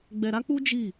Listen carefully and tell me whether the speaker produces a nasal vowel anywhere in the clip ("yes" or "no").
no